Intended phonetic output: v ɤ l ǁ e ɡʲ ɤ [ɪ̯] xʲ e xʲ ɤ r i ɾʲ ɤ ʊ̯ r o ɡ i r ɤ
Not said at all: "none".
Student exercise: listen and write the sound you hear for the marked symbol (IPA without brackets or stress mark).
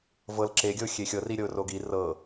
ʊ̯